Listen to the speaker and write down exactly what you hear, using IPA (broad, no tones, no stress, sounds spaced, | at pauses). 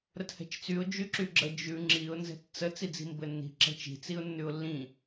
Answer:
ɾ ə t h ɛ̤ t͡ʃ t͡s y ʊ̯ d͡ʒ y ǁ y ɡ͡ǁ ə d͡ʒ ʉ ŋ͡ǁ i ʊ̯ n z ɛ̤ t t͡s ə t͡s i d͡z i̤ m b ɘ nː i̤ ǁ ɛ̤ t͡ʃ i̤ t͡s i ʊ̯ nː ʉ ʊ̯ lː ĩ